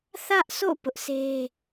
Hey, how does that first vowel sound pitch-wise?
high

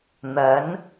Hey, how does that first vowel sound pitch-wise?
rising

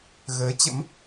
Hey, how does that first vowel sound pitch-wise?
rising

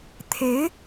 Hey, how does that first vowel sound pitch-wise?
rising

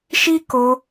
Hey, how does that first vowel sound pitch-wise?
high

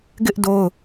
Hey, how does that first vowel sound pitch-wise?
high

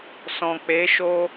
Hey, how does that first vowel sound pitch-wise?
low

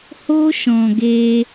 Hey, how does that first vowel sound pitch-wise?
high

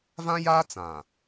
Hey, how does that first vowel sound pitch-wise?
high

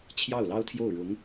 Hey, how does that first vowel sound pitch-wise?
falling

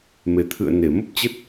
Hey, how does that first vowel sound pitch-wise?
low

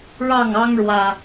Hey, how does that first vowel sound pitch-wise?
falling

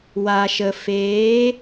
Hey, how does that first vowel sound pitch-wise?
low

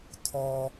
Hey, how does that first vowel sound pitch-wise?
low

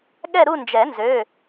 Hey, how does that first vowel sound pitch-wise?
falling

